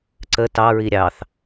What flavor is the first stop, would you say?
click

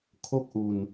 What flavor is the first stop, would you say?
aspirated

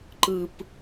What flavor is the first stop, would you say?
click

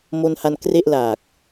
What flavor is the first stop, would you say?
plain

